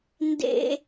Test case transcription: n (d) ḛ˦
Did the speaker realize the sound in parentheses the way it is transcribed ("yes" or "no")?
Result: yes